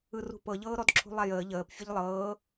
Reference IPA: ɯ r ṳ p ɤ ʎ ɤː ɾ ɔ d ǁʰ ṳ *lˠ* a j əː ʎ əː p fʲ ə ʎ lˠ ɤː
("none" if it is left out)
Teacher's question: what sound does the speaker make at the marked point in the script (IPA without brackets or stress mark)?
lˠ